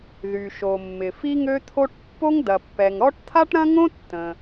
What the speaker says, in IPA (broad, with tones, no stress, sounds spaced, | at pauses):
ð y˩ ʃ o˩ mː ɪ˩ f i˥ ŋ ø˥ t̪ʰ o˥ ʈ pː o˥ ŋ d ɐ˩ pː ɛ˩ ŋ ɾ ɔ˥ ʈ t̪ʰ a˥ ʈ ɾ ɐ̃˥ ŋ õ˥ tː ə̃˩